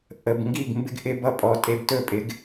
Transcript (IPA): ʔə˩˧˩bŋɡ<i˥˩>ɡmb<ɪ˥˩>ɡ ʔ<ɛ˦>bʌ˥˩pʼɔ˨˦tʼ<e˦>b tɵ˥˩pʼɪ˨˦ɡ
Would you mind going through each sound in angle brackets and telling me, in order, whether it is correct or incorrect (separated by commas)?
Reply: correct, incorrect, incorrect, correct